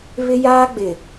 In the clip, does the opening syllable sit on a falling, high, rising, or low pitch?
high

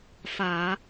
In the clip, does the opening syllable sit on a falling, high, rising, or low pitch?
low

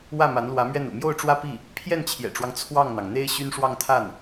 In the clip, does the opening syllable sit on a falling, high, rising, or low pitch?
falling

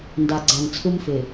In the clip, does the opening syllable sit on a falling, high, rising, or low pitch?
low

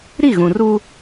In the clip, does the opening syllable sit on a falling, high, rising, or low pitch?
falling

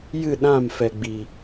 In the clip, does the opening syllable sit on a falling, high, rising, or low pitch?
falling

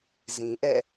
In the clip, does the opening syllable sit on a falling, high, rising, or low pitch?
low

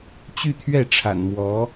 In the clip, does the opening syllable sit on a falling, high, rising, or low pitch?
falling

